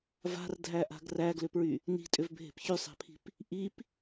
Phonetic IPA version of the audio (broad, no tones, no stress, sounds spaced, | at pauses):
v a̤ r dʱ æ ʔ a̤ ɡ r æ ɡ l ʏ p ɹ y | n i̤ tʼ ʏ v bʱ e̤ p ç y sˤ æ̤ pʰ i̤ p | ʔ i p